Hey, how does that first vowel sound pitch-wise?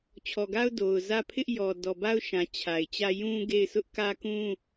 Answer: low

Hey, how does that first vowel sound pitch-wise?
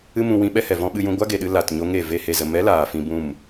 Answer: high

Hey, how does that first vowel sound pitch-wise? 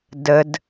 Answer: low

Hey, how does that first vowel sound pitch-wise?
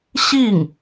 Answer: falling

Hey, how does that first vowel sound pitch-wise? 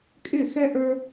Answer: falling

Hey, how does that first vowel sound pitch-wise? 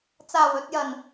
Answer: low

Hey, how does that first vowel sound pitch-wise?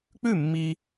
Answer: falling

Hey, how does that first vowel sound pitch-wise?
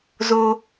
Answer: high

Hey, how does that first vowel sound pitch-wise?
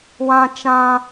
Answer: high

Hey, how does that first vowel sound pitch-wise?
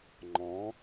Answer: rising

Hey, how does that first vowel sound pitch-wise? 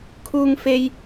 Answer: high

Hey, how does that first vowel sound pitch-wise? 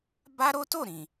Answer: high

